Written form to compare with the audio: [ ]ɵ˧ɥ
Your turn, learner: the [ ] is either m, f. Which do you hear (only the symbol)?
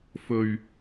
f